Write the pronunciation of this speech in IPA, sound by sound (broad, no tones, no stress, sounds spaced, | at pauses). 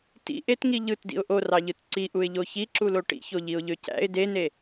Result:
t ḭ ʔ e t ŋ i ʎ ɯ t d ḭ ʊ̯ ʔ o r ɑ ʎ ɯ t ǀ i ʔ u ɪ̯ ʎ o ç i ǁ u l o ʈ ḭ ç o ʎ i ʊ̯ ʎ ø c æ̰ ɪ̯ d e n e